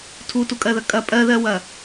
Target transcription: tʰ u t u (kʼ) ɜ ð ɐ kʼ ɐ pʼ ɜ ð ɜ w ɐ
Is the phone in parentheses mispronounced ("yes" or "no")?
no